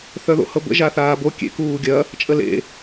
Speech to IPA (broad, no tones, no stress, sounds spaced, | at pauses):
θ œ ð o̰ h ɤ b ə̰ ʒ a θ aː b o kʲ ḛ k uː ɡʲ ɐ | t͡ʃʼ ə l ḛ